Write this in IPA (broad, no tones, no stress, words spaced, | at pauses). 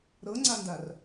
ɾɤŋ͡ǀandar